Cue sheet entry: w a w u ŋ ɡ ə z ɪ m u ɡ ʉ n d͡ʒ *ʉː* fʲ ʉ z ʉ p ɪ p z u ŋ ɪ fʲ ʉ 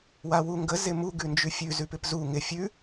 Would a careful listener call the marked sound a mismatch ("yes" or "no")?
yes